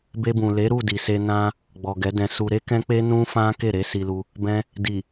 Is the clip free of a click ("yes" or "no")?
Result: yes